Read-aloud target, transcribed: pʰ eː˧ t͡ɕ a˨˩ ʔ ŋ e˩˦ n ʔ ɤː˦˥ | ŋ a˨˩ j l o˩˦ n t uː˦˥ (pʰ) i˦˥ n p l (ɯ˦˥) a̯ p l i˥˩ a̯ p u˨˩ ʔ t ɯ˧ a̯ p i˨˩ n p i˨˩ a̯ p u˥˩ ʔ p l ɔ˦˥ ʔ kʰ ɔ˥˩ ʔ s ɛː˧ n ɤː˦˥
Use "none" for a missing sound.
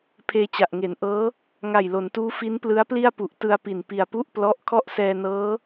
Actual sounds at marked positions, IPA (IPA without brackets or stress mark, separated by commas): f, ɯ˦˥